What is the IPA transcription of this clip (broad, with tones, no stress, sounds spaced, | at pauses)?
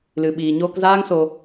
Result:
l ɨ˨ ɓ iː˨ ɲ oː˧ k z aː˦ ŋ s o˧